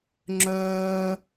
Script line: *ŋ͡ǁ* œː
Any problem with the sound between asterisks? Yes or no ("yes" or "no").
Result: no